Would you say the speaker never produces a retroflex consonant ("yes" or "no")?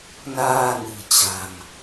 yes